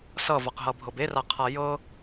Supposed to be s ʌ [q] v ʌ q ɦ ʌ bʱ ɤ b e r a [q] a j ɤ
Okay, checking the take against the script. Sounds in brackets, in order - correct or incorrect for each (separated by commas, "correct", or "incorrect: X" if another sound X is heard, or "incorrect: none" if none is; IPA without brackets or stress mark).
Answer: incorrect: none, incorrect: qʰ